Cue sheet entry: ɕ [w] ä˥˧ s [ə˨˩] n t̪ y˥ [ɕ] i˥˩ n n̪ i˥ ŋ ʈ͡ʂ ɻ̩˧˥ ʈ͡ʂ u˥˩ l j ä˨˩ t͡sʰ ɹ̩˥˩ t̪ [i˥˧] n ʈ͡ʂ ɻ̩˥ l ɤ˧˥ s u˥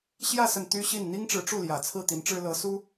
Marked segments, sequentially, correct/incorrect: incorrect: j, incorrect: ə˥˩, correct, incorrect: i˧˥

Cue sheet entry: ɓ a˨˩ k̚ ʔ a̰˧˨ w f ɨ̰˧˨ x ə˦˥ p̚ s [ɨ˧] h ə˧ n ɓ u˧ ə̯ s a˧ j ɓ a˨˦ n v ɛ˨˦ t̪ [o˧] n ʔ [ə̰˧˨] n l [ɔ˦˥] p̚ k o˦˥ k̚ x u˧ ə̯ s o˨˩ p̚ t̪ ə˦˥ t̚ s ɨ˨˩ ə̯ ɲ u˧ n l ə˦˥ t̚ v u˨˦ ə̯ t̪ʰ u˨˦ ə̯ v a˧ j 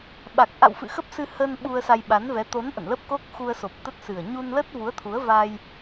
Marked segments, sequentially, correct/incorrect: correct, incorrect: o˨˦, correct, incorrect: ə˦˥

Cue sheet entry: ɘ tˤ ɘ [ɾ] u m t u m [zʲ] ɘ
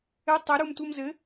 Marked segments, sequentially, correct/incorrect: correct, incorrect: z

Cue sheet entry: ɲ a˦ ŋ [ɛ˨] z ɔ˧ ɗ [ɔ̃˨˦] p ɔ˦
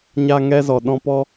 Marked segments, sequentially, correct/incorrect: incorrect: ɛ˦, incorrect: ɔ̃˦

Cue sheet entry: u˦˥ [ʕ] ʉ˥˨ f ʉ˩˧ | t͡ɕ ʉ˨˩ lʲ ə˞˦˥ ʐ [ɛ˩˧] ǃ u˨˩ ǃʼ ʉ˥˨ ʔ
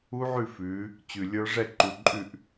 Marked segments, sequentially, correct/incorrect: correct, incorrect: ɛ˥˨

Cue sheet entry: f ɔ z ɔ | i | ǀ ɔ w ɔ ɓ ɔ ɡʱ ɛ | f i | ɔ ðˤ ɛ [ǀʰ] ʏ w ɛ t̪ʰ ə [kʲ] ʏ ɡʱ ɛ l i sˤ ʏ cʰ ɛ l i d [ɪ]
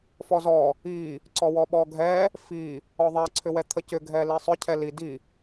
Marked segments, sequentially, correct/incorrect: correct, incorrect: c, incorrect: i

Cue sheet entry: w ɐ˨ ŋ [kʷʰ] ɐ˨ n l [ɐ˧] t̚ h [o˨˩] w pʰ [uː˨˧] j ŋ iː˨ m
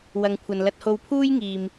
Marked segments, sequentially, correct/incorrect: correct, correct, incorrect: o˧, incorrect: uː˥

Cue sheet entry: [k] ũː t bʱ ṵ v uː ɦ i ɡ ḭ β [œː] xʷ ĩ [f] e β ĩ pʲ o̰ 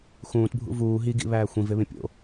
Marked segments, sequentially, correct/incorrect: incorrect: x, incorrect: æː, incorrect: v

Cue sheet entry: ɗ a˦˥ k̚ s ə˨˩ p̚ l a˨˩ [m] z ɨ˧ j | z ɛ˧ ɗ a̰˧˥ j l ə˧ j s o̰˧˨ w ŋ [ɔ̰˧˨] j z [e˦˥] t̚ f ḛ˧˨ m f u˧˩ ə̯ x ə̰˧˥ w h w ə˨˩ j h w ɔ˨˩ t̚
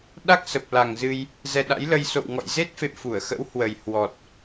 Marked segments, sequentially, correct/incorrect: incorrect: ŋ, correct, correct

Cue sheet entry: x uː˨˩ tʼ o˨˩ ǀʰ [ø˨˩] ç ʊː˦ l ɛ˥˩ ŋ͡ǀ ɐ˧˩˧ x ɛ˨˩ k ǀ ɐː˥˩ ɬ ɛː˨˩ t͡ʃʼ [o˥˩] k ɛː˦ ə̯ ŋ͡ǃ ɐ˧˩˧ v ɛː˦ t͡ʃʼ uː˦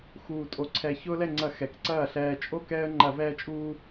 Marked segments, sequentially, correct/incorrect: incorrect: ɛ˨˩, correct

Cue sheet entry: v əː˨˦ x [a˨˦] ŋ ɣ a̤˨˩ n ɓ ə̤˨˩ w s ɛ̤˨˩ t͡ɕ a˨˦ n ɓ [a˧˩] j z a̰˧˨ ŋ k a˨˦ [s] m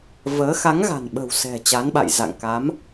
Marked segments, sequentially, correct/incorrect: correct, incorrect: a̰˧˨, incorrect: none

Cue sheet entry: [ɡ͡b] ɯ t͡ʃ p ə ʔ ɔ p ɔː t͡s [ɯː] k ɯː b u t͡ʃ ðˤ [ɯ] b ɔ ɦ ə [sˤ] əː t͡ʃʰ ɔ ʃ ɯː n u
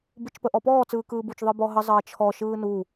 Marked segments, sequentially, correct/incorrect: incorrect: b, correct, correct, incorrect: zˤ

